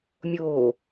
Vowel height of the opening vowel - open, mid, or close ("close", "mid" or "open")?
mid